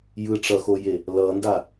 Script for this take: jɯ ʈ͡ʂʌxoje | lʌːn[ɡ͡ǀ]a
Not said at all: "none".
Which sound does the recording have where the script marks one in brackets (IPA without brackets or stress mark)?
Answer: d